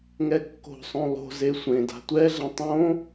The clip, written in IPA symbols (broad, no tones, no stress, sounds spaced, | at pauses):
ŋ ɛ kː o̤ sˤ õ lˠ o̤ z e sʷ ẽ d a̤ tʷ ɛ ɮ ɛ̃ tˤ õ